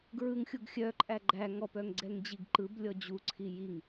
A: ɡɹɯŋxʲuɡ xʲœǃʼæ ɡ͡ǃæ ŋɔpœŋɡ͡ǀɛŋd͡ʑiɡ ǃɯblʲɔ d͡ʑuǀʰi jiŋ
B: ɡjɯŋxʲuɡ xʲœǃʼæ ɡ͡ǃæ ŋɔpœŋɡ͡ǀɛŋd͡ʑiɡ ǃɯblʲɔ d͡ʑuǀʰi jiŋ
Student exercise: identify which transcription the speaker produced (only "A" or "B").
A